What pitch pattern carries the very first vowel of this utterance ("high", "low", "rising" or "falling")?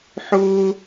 high